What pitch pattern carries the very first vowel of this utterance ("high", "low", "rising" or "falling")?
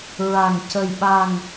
low